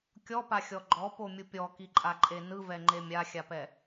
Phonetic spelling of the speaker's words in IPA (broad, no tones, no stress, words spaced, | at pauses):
kʲɔpaxʲɔ ɡ͡ǃɔpomʲu pʲɔkiǃʼaǃʼe nɯvɛŋ͡ǃe mʲaxʲapɛ